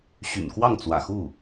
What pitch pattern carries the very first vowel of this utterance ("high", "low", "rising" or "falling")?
low